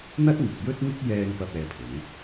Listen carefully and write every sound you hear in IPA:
n̪ɐ˥t̚ŋɪ˨k̚jɵ˥t̚ŋɪ˥k̚ jɛː˥ŋ pɐ˥p̚ɛː˧pʰʊ˨˥ŋ

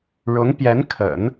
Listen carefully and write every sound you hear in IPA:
ɻʊ˧˥ŋpjɛ˧˥nkʰə̰˨˩˦n

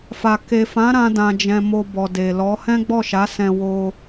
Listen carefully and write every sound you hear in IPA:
fa˨ ke˨fã˨˦ ɾã˧dã˨d͡ʒɛ̃˨ mo˧bɔ˨de˨lɔ˨˦ hɛ̃˦ɡ͡bɔ˦˨ʃa˨˦ sɛ̃˧wo˧

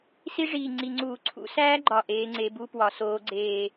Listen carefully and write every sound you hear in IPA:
si˦˥ʐiː˨˩ ŋ͡ǀi˨˩ŋ͡ǀuː˧˩˧ ǀʰṵ˨˦sæː˦˥ɡ͡ǃɒ˨˩ ʔeː˨˦ŋ͡ǀe˨˦bu˦˥pwɒ˨˦ soː˨˦ɡ͡ǀeː˨˩

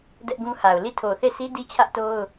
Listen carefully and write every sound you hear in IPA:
dɛ˦ʔɡũ˦ha˨ʊ̯ li˦˨tʰo˨θe˦˨sʰi˦ di˦t͡ɕʰä˦ʔto˦ʊ̯

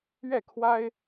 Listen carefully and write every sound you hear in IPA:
ɥɛ˥˨kʰwa˦ɪ̯

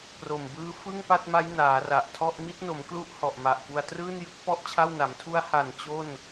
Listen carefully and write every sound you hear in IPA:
pro˨˩mbɯː˦˥ fɯ˥˩ŋpa˥˩t̚ma˦˥j naː˩˦ra˨˩ʔtʰɔ˥˩ʔ mi˦˥t̚no˩˦mklu˦˥ʔ hɔ˨˩ʔma˨˩ʔpu˧a̯ trɯː˥˩njɯ˦˥k̚pɔ˥˩ʔ t͡ɕʰa˥˩wna˩˦m tʰu˦˥a̯ha˨˩n t͡ɕo˥˩n

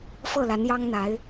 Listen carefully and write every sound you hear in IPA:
fɤ˥˩la˧˥njɑ˥ŋn̪a˧˥ɪ̯

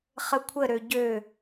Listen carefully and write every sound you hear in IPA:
χəkʷʰə ɾøɟø

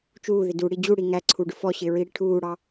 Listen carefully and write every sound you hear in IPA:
t͡ʃuː ðɪduɽi d͡ʑuɽi ŋæǀʰu ɖʊfɔɕɪː ɹiɽiʈʰuːɽɑ

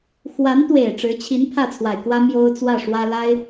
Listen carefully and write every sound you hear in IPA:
xwa˧˥nt̪we˨˩ɪ̯ ʈ͡ʂɻ̩˧˥t͡ɕʰi˧˥n pʰä˥˩t͡sʰwa˨˩ɪ̯kwä˥ mjo˥ʊ̯t͡swä˥˩ʂwä˥ la˥ɪ̯

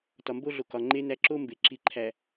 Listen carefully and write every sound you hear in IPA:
tɒ˨mbo˦ɮo˨ kɒ˨ŋ͡ǃe˦næ˦ ǁo˦mbe˨ǁi˨ǃʰæ˨

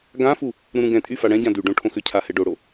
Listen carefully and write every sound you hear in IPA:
ɡãfu | ɾũɾũɡɛ̃tʼy faɽɛ̃ɟã dyɖõ ʈʰõxʏcʰa hɛɖoɽo

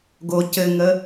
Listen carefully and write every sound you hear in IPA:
ɡo cɘŋə

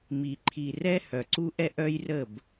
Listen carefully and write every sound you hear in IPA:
mi˨ǃʰi˨rɛ˦ hœ˨ǀu˦ʔɛ˦ ʔœ˦j rə˦˨b

